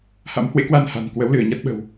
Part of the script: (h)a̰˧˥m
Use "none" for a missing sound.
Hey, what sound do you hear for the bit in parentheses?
h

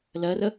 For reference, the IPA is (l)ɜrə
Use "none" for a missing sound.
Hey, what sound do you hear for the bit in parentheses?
l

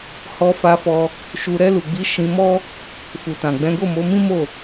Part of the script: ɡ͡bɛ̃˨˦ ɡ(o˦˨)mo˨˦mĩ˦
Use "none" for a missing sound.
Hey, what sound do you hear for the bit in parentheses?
o˦˨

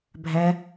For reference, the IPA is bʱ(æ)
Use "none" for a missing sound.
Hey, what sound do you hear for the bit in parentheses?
æ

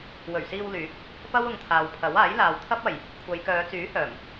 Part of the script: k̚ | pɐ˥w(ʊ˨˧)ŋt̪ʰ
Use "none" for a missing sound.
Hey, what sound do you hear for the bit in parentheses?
ʊ˨˧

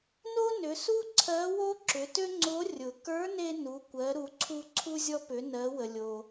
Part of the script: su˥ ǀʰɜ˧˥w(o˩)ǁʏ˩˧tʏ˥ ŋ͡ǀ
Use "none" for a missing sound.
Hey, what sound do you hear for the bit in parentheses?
o˥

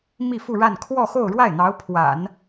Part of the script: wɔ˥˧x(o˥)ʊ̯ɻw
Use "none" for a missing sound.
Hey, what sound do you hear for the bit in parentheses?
o˥˧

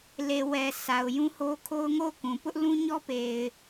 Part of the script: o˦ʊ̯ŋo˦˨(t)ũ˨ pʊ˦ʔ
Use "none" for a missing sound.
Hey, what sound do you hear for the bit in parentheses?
k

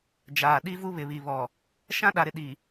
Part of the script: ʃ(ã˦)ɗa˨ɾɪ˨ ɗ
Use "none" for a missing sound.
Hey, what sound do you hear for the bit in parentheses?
ã˦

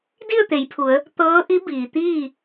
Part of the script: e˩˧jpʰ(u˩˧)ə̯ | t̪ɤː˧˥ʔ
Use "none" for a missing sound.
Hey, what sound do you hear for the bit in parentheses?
u˩˧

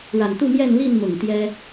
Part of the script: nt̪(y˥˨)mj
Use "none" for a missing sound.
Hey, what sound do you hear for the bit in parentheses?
u˥˨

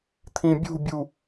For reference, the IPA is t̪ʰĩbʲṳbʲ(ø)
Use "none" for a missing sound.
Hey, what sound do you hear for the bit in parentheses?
u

